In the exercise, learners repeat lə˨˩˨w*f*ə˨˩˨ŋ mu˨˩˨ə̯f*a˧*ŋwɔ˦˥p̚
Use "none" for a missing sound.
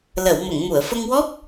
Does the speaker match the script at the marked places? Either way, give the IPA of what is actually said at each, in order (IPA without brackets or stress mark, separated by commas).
m, ə˧